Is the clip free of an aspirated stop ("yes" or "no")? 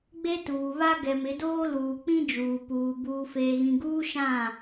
yes